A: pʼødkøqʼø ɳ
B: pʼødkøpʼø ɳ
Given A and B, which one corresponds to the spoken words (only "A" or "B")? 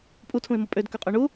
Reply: A